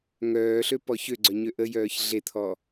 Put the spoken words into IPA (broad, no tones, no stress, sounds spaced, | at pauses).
ŋ œː ɬ ø p ɔ ç ø ɡ͡ǀ œ ɲ ø ʔ ə j œː ç ɮ e t̪ʰ ɔ